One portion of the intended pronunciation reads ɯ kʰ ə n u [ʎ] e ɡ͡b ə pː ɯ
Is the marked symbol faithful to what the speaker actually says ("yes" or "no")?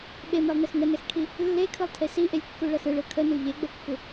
yes